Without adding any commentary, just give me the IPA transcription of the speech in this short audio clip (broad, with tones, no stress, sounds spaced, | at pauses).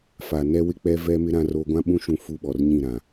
f a˨ n ɛ˦ w ɪ˦ k͡p ɛ˦ v ɛ˦ m ɪ˦ ɾ ã˦ r o˦ ɡʷ ã˦ ɓ ũ˦ ʃ ũ˦ f u˦ ɓ ɔ˨ r ɲ ĩ˦˨ ɾ ã˨